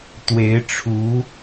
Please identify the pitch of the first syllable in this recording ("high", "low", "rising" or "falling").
rising